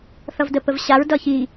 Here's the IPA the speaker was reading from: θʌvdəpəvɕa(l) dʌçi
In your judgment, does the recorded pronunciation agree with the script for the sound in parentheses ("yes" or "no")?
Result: no